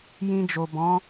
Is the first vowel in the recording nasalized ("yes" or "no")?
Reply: yes